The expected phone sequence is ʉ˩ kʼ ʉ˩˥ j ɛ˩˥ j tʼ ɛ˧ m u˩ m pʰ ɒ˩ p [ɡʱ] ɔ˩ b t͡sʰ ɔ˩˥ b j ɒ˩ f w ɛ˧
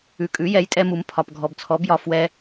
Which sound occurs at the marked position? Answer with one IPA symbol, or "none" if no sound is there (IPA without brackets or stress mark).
ɡʱ